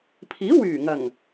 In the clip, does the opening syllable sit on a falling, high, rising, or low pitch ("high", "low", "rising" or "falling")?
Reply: rising